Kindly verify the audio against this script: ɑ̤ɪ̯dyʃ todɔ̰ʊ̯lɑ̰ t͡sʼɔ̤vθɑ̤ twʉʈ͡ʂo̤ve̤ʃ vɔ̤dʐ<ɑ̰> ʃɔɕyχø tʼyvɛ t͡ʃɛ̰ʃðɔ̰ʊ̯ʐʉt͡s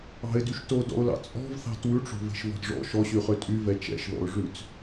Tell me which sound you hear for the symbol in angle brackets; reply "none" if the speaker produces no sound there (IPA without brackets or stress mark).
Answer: ɔ̰